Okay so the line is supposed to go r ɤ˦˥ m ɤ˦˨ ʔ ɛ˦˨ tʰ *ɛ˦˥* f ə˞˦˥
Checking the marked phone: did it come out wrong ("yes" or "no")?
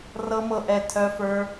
yes